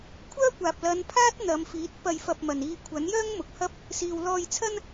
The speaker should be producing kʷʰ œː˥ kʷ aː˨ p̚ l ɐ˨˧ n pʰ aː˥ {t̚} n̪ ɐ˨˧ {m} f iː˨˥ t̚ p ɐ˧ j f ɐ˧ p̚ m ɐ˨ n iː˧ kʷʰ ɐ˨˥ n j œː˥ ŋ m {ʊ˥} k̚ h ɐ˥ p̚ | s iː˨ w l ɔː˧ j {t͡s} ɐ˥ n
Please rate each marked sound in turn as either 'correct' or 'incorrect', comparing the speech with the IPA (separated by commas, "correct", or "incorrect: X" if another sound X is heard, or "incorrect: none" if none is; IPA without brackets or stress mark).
correct, correct, incorrect: ʊ˨, incorrect: t͡sʰ